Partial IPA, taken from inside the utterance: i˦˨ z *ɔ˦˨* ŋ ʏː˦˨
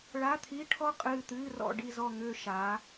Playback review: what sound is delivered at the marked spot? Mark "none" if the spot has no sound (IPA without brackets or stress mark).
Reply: ɔ˦˨